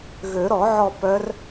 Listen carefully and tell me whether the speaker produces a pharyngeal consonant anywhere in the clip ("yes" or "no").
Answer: yes